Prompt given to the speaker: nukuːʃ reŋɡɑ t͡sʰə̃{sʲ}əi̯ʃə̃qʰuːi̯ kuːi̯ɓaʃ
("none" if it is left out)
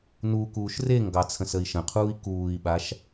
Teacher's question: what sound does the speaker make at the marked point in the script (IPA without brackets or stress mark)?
s